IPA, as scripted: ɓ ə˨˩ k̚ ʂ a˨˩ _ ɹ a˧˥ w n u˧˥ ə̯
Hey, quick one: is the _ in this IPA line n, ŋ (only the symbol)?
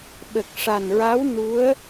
n